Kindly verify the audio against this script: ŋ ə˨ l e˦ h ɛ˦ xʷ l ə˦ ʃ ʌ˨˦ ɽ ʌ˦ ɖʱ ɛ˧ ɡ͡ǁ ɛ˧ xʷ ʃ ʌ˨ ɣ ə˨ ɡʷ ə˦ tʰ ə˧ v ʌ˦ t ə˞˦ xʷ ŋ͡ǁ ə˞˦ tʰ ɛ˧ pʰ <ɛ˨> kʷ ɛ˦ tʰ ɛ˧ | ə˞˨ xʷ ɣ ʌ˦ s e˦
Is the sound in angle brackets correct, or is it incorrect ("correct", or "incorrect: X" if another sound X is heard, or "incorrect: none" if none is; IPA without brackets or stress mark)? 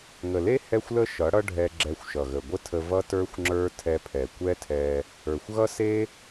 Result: correct